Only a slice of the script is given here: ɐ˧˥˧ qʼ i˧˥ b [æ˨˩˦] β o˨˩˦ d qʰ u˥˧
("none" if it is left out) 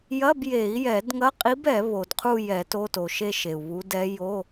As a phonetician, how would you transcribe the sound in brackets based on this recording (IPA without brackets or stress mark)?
ɛ˨˩˦